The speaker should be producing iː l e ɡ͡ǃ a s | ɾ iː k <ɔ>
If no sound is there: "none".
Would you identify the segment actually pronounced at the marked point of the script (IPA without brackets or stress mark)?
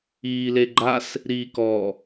ɔ